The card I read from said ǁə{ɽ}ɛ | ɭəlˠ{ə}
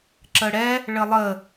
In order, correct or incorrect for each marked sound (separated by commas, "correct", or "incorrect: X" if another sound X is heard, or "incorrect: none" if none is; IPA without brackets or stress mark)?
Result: correct, correct